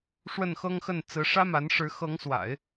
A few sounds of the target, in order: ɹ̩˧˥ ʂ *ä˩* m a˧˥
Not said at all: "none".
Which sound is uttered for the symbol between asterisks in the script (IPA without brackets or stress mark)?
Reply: ä˥